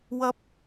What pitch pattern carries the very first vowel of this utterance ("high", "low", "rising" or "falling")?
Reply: high